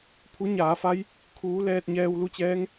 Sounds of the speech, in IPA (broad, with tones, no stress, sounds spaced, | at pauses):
pʰ u˧˥ ɲ aː˩˧ f a˧˥ j | kʰ uː˧˥ l ɛː˧ t̚ ɲ ɛː˧ w l u˧ t͡ɕ ɛː˧˥ ŋ